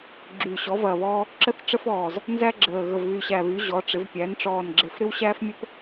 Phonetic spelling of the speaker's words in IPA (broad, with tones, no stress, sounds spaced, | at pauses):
ɡ͡ǁ yː˨˩ ɕ ɔ˩˧ v ɐː˨˩ β ɔː˧ | ǁ ə˧ θ ʈ͡ʂ ə˧ f ɔː˨˩ z | n z æ˧ ɡ͡ǁ əː˨˩ ɣ ə˨˩ v β y˨˩ ɕ æ˨˩ β y˩˧ ʑ ɔ˩˧ ʈ͡ʂ ɪ˩˧ v pʲ æ˩˧ n ʈ͡ʂ ɔː˨˩ n ɡ͡ǁ e˨˩ f ɾ ɪ˧ w ɕ æː˧ f mʲ ə˧ p